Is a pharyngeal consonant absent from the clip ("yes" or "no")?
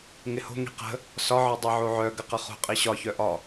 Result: no